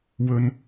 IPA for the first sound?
w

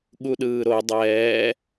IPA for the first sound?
ɠ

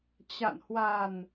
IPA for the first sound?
t͡ɕ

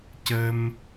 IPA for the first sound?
c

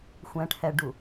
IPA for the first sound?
xʷ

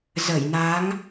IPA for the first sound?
z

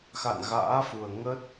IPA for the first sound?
x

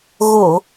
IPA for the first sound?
ɣ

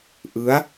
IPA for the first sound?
ʔ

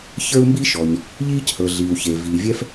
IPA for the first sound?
ç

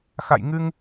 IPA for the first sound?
x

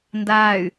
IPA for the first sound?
n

